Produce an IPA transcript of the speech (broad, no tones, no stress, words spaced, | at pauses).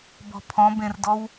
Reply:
bɔ̤pʰɔ̃bẽrdɔw